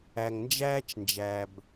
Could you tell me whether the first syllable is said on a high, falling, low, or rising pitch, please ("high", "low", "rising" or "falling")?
low